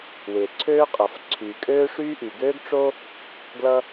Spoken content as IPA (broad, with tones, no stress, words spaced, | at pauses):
wɪː˩ǀʰøː˥qʼʌ˩f ǀʰyː˩kʼøː˥ʂyː˥ʔy˩ ɡøː˥ɡʈ͡ʂo˥ | ɡlʌ˥